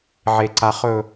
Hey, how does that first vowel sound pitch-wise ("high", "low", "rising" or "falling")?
low